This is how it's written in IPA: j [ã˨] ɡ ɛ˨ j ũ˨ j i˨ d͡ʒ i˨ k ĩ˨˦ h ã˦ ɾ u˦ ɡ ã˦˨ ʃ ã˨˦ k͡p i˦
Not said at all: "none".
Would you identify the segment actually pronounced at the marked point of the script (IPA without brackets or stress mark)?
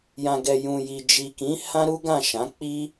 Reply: ã˨